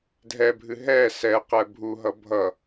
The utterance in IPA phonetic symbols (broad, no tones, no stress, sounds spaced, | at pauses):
dʱ ɛ bʱ ɨ ɦ ɛ s ɛ q ɛ bʱ u ɦ ʌ bʱ ʌ